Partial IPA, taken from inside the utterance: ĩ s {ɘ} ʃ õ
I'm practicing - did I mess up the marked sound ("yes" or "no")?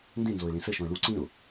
no